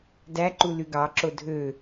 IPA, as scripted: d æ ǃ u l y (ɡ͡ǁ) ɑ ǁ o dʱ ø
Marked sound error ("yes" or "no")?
yes